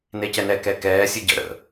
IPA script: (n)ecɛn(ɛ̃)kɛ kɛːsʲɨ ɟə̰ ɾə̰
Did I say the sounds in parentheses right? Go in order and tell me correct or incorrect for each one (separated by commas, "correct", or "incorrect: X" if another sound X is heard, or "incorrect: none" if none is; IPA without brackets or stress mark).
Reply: correct, incorrect: ɛ